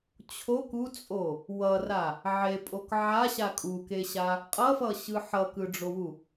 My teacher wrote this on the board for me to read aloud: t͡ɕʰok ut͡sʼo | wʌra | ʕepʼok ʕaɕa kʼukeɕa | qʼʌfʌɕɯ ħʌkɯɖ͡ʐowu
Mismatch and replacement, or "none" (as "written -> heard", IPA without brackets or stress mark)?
none